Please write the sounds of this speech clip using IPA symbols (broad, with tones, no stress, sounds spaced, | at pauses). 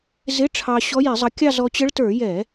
z ɪ˧˥˧ ʈ͡ʂʰ ɑ˧ ɕ ɔ˧˥ j i˧˩˧ zˤ ʌ˧ kʲ ɑ˥˧ z ɔ˧ t͡ɕ ə˧˥ ɭ t ə˞˧˩˧ j ɛ˧˩˧